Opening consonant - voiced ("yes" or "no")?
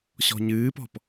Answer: no